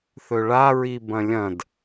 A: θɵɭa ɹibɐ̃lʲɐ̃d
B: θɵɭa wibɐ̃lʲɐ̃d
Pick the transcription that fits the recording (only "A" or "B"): A